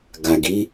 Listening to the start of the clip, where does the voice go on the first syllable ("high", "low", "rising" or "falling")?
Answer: low